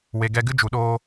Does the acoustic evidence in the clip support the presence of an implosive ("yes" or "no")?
yes